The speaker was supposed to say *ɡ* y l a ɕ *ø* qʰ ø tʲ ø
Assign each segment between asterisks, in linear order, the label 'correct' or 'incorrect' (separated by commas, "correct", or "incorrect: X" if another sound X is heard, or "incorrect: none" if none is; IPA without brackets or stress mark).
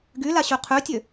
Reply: correct, correct